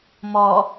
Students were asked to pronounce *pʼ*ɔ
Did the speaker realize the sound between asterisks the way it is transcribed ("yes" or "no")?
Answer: no